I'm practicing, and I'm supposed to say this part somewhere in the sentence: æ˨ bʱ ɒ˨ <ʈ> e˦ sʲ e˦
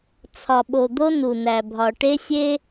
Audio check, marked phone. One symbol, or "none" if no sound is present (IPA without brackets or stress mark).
ʈ